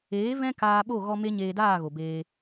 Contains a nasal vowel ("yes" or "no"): yes